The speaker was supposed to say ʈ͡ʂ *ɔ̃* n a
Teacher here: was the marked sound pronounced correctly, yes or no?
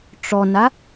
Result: no